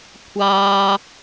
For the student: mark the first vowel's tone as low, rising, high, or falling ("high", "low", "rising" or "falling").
high